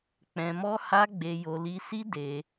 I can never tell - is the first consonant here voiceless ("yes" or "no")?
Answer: yes